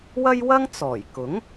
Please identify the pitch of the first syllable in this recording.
high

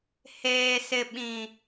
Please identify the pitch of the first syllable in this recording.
low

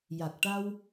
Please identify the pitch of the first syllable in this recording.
low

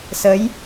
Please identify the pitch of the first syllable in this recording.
rising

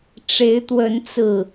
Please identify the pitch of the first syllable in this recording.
rising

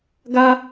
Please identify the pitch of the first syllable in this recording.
high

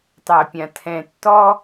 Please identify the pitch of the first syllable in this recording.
low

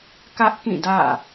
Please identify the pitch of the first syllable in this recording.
high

